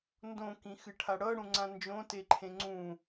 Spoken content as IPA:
n d õ k ĩ x ɨ ʈʰ a ɽ ɤ ɽ ũ ŋ͡ǀ ã n d͡ʒ õ t e ǃʰ ẽ ŋ͡ǀ ũ

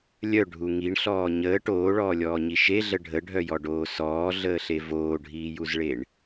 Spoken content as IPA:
lʲ œ ɖʱ u ŋ i ɳ ɬ ɔː ɲ əː ʈ oː ɭ ɔː lʲ ɔː ɲ i ʃ e ɮ ə ɖʱ ə ɖʱ œ j ɔ ɖ oː s ɔː ɮ əː ɬ e v oː ɖʱ iː j u z ɭ e ɳ

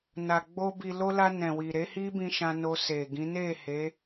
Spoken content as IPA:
n a˨ ɡ͡b o˧ b i˨ l o˧ l a˧ n ɛ̃˨ w i˨ ɾ e˨˦ h i˦ b ĩ˧ ʃ ã˧ n o˧ s e˨ ɡ ĩ˨˦ n e˦˨ h e˨˦

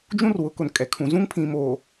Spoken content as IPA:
d͡ʒ ũ˦ r w ʊ˨˦ k ʊ˨ n kʼ ɛ˨ kʰ ũ˨ z ũ˦ ŋ pʰ ĩ˨ m oː˨

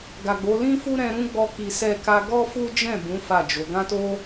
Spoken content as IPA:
ɡ a˨ ɡ͡b o˨˦ l ĩ˦ f u˦ ɾ ɛ̃˧ ɾ ũ˦ ɡ͡b ɔ˦ k i˧ s ɛ˦ k a˦ ɡ ɔ˦ f u˦ d͡ʒ ɛ̃˦˨ b ũ˨˦ f a˦˨ d͡ʒ o˨˦ ɡ ã˦ t o˦

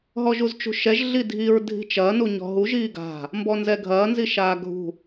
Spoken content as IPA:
ɦ ɔ ʒ u z t͡ʃ ṳ ʃ ɛ ʒ ɮ i dʱ i ɹ dʱ i̤ t͡ʃ ɐː n u ɲ ɔ̤ ɦ u ʒ iː ɡ a̤ | m b ɔ n z ɛ ɡʱ ɐː n z i ʃ aː ɡʱ ṳ

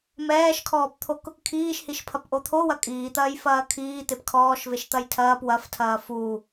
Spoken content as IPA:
m ɛː ʃ kʰ ɔː p t̪ʰ o k | kʰ iː ʃ h i ʃ pʰ ɐ p ʔ o t̪ʰ o w ɐ kʼ iː t̪ ɐː j f ɐː kʰ iː t̪ e p kʰ ɔː ʃ v e ʃ t̪ ɐ j tʰ ɐː p w ɐ f tʰ ɐː f u

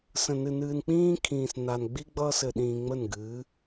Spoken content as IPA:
s ə̃˨ n ɨ˨ n ɨː˨ n k͡p ĩː˦ kʰ ĩː˨ s n a˨ n ɡ͡b i˦ ɡ͡b ʌː˦ s ɘ˨ ɗ ĩː˨ ŋ͡m ə˦˨ n ɡ ɨː˨˦

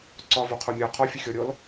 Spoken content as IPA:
ǀ ɒ v o qʰ o mʲ ɔ qʰ ɒ fʲ ə xʲ ɔ ɾʲ ɔ l

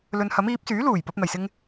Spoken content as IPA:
l ɵ˧ n h ɐ˨˥ m iː˨˥ p̚ s yː˨˥ l uː˨˩ j p ɐ˧ p̚ n̪ ɐ˨˩ j s ɪ˥ ŋ

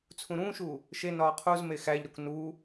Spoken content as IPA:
t͡sʰ ũ ɾ ũː ʃ uː | ʃ e n ɒː qʰ u z m e x æ ʎ ɾ o k n uː

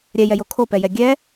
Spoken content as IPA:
ɾʲ ɛ j ɛ j o kʰ o p ɛ j ɛ ɡʲ ɛ

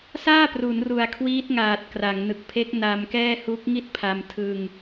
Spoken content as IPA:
s aː˥˩ p r u˩˦ n r u˨˩ a̯ kʰ w iː˦˥ t̚ ŋ aː˨˩ t̚ k r a˩˦ ŋ n ɯ˨˩ k̚ pʰ e˦˥ k̚ n a˧ m k ɛː˥˩ h u˦˥ k̚ ŋ i˥˩ t̚ pʰ a˧ m tʰ ɯ˧ ŋ

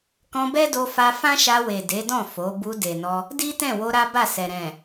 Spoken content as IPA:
k ɔ̃˧ b ɛ˦ d o˧ f a˧ f ã˦ ʃ a˧ w e˨ d e˨˦ d ɔ̃˦˨ f o˨˦ b u˧ d e˨ n ɔ˧ | d i˦ t ɛ̃˦˨ w o˧ ɾ a˦ b a˦˨ s ɛ˨ ɾ ɛ̃˨

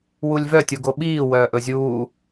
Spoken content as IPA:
w u lʲ v œ tʲ u ɡ o ɓ iː w œː ʔ ɵ zʲ uː

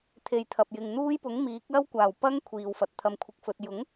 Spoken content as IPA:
t̪ʰ e˨ j t̪ʰ ɐ˨ p̚ j ɪ˨ ŋ n̪ uː˥ j p ʊ˨˥ ŋ m iː˨˥ k̚ l ɐ˥ w kʷ aː˨˩ w p ɐ˥ ŋ kʷʰ iː˨ w f ɐ˨ t̚ t̪ʰ ɐ˧ m kʷʰ ɪ˧ k̚ f ɵ˧ t̚ j ʊ˨˥ ŋ

